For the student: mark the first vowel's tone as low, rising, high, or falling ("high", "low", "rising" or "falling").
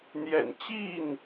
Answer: low